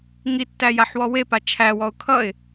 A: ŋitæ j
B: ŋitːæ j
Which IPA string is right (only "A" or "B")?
B